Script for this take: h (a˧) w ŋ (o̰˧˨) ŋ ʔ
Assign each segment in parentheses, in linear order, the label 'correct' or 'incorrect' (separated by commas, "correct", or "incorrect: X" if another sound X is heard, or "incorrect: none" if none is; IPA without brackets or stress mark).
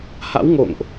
incorrect: a̰˧˥, correct